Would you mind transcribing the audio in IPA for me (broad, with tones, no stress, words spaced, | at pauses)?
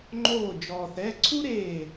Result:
ŋ͡ǃoː˧˩ d͡ʒɔː˩θɛ˩˧˩ ǀʰu˥ɾeː˧˩